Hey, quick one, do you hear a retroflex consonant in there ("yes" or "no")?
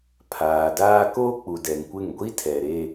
no